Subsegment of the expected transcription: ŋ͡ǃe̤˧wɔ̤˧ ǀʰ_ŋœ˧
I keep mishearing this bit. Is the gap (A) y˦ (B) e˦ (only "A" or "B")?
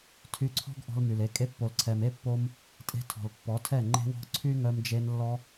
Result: A